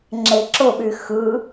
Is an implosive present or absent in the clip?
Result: present